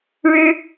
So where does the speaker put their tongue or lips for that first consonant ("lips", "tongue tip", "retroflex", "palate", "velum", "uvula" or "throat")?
retroflex